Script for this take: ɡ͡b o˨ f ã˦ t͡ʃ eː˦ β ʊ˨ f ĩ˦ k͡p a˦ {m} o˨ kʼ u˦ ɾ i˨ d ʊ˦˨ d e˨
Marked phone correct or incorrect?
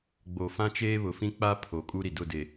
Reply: incorrect: pʰ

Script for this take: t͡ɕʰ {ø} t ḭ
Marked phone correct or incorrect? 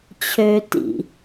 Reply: correct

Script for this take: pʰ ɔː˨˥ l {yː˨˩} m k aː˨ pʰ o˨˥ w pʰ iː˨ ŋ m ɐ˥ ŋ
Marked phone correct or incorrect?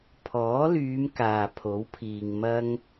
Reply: incorrect: yː˨˧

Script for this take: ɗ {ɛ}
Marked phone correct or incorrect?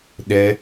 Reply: correct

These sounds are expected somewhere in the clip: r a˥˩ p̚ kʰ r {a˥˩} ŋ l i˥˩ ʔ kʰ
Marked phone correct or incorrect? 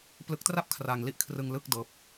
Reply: incorrect: a˧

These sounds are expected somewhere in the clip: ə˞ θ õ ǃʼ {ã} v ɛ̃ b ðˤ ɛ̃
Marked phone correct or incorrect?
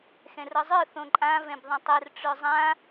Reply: correct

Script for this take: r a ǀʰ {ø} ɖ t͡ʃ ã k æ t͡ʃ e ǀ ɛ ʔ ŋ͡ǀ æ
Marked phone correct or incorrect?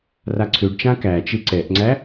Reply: correct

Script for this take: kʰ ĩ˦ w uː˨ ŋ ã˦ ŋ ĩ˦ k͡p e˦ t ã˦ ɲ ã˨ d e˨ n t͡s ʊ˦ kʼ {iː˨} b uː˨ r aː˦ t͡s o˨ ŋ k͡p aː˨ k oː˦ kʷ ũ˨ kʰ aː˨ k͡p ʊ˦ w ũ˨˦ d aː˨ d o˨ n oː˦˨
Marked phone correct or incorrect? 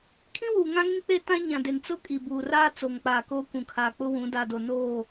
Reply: incorrect: i˨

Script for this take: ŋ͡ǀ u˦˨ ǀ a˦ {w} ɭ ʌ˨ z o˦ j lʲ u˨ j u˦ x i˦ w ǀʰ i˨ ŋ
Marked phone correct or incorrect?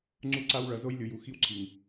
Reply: correct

